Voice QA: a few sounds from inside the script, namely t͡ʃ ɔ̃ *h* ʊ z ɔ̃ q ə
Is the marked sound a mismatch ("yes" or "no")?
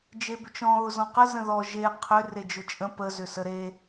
yes